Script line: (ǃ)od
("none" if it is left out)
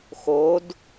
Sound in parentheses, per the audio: x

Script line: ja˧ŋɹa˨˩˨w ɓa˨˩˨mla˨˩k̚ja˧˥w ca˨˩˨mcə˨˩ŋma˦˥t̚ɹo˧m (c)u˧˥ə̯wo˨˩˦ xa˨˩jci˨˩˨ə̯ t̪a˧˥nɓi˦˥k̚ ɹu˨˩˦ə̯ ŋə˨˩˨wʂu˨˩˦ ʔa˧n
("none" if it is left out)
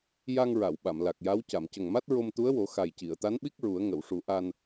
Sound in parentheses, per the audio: t̪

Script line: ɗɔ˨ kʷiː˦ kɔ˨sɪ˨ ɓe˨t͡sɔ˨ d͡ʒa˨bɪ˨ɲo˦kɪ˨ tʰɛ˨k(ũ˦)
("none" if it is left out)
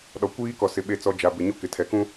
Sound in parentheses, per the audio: ũ˦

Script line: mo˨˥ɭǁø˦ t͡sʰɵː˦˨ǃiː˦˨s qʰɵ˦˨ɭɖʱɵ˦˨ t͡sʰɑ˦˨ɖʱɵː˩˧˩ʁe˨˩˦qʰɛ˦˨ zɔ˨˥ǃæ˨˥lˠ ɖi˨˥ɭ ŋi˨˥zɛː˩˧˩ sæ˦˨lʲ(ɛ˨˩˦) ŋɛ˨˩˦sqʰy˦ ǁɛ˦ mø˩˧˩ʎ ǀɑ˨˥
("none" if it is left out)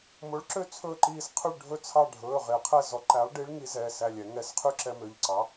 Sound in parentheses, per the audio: ɛ˨˩˦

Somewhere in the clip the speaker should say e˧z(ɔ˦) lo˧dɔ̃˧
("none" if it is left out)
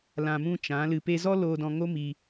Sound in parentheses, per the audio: ɔ˦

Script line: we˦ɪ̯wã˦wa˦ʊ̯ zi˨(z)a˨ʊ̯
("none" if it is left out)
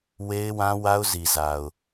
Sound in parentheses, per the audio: z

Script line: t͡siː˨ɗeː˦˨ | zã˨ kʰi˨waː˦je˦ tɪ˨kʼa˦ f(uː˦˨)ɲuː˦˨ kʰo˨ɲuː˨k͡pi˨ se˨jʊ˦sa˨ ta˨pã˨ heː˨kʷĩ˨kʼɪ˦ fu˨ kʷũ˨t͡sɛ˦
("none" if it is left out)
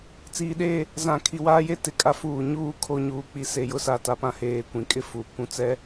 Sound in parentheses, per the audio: uː˨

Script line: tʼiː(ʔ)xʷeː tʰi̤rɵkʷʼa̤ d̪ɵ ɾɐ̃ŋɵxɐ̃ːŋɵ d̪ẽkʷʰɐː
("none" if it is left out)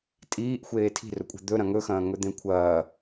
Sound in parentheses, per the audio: ʔ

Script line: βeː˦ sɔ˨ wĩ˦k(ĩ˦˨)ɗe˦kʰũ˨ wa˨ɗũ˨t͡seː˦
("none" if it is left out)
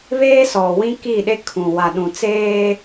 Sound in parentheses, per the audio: i˦˨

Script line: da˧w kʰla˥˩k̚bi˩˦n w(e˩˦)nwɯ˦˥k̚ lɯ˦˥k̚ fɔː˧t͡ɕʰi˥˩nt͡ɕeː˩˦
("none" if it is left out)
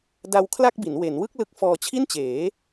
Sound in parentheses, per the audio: e˩˦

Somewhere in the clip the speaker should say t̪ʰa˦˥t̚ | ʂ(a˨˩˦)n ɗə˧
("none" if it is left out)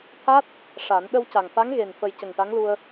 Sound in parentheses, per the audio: a˨˩˦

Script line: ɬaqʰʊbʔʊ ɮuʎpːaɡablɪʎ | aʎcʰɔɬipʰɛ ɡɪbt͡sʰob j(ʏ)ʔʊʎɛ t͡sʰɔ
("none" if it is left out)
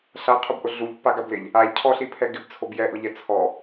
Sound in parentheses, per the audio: ɛ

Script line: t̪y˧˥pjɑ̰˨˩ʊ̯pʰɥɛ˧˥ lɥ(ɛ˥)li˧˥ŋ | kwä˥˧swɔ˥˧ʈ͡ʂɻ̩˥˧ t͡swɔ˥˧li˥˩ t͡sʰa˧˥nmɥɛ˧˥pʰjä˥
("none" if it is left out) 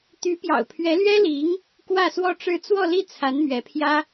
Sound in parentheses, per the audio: ɛ˥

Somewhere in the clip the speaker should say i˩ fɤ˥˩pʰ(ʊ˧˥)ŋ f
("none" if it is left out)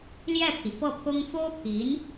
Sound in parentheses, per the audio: ʊ˥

